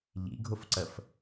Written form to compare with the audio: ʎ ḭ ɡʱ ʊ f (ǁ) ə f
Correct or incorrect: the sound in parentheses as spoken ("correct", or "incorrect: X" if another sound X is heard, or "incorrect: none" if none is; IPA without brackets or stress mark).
incorrect: ǀ